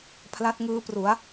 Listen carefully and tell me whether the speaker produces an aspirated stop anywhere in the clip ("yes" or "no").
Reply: yes